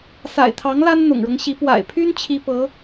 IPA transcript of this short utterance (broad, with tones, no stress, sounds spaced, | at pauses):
s a̰˨˩ ɪ̯ t̪ʰ ɑ˧˥ ŋ l a˥ n n̪ ʊ̰˨˩ ŋ ɻ ɤ˦ ŋ ɕ i˧˥ p w a̰˨˩ ɪ̯ pʰ y˥ n t͡ɕʰ i˥ p ɤ˧˥